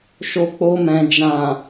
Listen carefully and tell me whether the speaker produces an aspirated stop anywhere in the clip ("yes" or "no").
no